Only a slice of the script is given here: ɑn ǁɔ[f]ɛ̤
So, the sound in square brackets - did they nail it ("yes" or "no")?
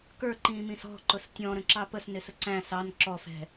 yes